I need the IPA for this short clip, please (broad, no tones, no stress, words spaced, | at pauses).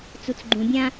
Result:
t͡sut͡sɡ͡ǃũbʲã